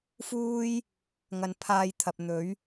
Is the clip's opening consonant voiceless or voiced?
voiceless